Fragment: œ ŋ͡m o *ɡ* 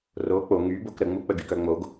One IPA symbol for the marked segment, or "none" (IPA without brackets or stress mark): ɡ